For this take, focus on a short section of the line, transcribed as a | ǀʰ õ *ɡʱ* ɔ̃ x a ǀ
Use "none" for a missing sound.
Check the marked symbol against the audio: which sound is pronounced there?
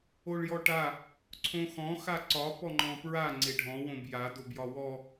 x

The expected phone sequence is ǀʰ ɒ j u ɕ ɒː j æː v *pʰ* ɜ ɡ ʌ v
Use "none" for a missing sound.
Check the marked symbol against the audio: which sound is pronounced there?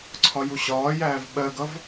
ɓ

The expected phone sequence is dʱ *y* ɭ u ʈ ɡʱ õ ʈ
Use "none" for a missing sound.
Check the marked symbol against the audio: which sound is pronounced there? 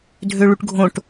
ø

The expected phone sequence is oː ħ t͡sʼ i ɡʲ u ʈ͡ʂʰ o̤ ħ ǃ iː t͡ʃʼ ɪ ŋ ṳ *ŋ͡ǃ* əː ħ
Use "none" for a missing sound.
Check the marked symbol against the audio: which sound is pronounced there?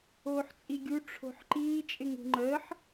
ŋ͡ǃ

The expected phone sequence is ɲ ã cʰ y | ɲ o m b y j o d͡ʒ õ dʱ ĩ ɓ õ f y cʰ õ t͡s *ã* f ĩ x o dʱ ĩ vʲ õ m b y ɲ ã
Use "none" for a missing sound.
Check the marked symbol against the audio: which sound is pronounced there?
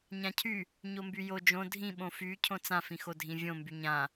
ã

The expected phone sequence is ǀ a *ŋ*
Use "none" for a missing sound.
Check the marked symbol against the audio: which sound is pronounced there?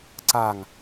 ŋ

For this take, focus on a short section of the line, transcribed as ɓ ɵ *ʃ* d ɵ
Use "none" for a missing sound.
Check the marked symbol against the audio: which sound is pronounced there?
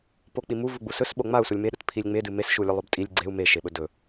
none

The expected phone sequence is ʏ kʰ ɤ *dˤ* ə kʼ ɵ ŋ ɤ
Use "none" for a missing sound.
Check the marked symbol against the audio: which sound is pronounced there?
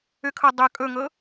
dˤ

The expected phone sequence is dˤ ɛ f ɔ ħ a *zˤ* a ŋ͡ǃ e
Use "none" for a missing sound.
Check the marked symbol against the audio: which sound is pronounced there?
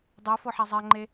zˤ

